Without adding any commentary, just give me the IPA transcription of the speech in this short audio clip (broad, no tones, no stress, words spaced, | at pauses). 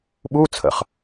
ɓu t͡sʰə̰χ